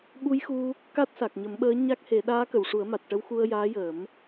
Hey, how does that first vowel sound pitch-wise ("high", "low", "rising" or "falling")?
rising